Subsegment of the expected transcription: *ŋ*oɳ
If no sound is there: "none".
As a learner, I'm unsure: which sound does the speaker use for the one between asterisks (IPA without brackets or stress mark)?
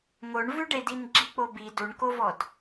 ŋ